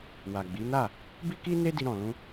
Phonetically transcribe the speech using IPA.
w a˨ ɡ͡b i˨˦ n a˦˨ | b i˦ k i˦ n e˦ d i˧ ɾ ɔ̃˨ l ũ˧

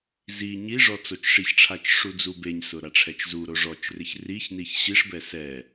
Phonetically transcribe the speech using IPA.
z i ɲ i ʐ ɔ t͡s o t͡ʃ ʂ i ç ʈ͡ʂʰ a t͡ʃ ʂ u d͡z u b e ɲ s ʊ ɾ a ʈ͡ʂʰ ɛ t͡ʃ z u ɾ o ʐ ɔ t͡ʃ r ɪ ç r i ç n i ç ɕ i ʂ b ɛ s ɛ

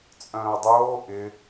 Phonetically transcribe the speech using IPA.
t͡sʼ œ̃ː ʊ̯ dˤ oː ʔ ɪ

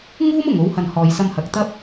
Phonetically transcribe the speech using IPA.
ŋ uː˥ m ʊ˨˩ ŋ o˨˥ w h ɐ˨ n h ɔː˨ j s ɐ˧ m h ɐ˨˥ k̚ t̪ ɐ˥ p̚

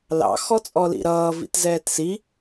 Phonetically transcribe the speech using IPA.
l ɑ̰ x ɔ t͡sʼ ɔ l ḭ ɾ ʌː v ḭ t z ɛː t s i

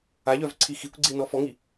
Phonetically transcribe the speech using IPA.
a ʎ œ v ǀʰ i x i kʷ ɡ͡ǀ i n ɔ f ɔ ŋ i

